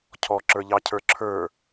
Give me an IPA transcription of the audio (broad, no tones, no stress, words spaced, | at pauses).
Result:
cʰɔǁə˞ʎɑ cʰə˞ǁʰə˞